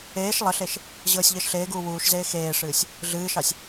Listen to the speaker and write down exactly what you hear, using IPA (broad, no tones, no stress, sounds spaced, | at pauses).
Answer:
eː ʃ lˠ ə ɬ e ʃ | ʑ ɤː sʲ ʎ əː ʃ ɬ eː ɡ uː w uː ʃ z eː x eː ʂ ɨː sʲ | ɮ ɨː ʃ ɑ sʲ